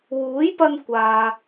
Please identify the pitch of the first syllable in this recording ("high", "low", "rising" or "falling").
rising